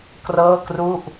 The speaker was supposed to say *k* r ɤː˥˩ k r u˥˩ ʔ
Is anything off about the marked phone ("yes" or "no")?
no